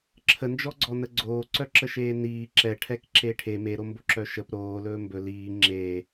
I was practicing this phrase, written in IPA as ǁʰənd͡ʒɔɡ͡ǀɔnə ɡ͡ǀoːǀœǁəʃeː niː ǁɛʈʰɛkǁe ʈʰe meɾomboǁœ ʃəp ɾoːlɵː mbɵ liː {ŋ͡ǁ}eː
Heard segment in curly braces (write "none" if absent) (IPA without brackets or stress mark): ŋ͡ǁ